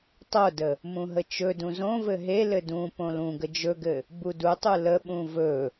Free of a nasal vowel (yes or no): no